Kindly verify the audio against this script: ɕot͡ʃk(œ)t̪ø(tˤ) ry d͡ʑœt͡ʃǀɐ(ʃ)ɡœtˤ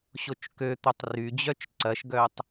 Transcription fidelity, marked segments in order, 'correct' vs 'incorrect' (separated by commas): incorrect, correct, correct